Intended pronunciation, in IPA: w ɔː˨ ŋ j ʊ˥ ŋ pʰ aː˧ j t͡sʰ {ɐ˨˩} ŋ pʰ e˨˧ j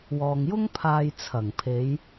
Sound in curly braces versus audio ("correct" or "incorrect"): correct